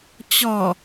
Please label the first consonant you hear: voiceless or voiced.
voiceless